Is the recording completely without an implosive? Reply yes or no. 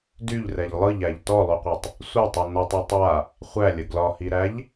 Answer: yes